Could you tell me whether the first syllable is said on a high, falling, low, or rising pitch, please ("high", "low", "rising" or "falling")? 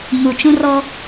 low